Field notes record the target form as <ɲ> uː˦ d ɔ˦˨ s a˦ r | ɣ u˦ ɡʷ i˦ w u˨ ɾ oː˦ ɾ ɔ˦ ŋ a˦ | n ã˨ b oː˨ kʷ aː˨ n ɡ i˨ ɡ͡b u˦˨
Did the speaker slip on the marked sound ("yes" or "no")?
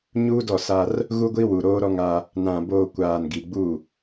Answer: no